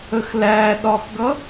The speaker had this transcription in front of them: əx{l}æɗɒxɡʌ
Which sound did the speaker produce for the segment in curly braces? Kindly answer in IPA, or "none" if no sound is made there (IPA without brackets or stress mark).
l